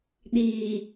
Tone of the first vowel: low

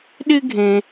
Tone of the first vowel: high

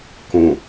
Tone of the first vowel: low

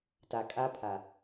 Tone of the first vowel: low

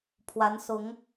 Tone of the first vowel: rising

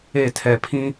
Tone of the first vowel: falling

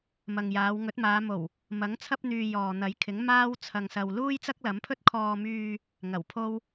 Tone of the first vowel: low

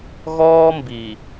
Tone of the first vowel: high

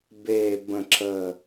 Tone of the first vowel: low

